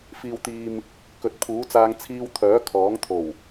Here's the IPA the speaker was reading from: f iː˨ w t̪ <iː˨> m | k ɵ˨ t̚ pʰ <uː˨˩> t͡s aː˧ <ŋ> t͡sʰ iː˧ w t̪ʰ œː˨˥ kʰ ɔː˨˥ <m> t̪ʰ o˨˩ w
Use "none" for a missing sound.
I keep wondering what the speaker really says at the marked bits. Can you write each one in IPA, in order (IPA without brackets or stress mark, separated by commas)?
iː˨, uː˨˥, ŋ, ŋ